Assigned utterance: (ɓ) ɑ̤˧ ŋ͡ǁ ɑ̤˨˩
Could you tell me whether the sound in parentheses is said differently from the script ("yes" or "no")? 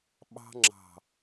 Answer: no